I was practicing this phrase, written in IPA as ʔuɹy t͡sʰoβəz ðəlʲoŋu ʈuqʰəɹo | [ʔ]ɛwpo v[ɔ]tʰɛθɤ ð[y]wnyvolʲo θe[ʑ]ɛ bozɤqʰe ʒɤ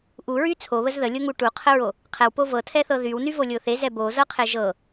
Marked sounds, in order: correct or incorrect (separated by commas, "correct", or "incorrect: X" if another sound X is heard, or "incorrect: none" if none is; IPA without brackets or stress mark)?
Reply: incorrect: qʰ, incorrect: ɤ, correct, incorrect: z